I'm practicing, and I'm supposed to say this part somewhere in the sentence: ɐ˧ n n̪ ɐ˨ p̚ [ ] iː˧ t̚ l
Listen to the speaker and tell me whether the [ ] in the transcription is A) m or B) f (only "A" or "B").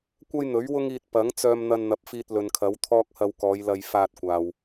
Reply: B